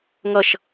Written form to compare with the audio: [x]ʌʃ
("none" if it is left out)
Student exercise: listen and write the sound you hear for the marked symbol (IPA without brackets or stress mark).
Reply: ŋ